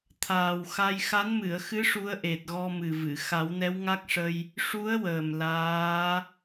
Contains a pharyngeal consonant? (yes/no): no